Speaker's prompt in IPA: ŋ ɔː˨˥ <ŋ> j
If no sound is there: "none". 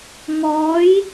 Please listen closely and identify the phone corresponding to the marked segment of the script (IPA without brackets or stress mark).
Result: none